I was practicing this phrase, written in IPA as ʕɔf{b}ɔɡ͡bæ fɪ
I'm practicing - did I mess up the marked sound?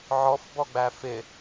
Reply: no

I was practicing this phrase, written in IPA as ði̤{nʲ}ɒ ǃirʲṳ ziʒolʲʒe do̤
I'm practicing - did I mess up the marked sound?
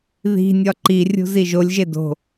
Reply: no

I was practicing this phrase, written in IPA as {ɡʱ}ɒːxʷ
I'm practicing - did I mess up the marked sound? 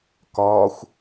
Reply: yes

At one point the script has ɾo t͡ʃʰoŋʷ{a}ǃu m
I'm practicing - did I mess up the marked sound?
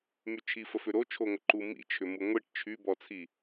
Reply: yes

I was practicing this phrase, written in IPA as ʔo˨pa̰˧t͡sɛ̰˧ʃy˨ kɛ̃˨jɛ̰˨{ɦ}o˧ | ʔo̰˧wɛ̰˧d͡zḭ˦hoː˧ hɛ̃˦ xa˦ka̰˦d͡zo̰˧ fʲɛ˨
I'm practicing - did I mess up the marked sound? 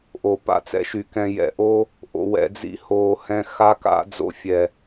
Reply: yes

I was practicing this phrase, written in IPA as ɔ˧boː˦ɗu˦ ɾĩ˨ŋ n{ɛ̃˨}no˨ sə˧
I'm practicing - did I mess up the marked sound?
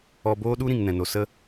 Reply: no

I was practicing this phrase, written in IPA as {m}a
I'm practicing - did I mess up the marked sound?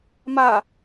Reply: no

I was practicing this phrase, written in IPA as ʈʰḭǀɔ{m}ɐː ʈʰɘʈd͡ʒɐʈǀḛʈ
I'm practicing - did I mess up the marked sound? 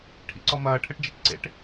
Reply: no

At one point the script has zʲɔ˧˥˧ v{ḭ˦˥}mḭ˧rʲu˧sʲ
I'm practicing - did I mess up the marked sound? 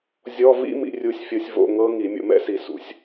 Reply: no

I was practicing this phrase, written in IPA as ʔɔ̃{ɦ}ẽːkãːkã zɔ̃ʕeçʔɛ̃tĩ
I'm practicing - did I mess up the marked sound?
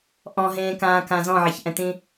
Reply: no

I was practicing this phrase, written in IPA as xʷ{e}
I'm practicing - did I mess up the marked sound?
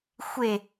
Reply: no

